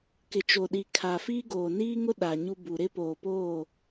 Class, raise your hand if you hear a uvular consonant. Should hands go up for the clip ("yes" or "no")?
no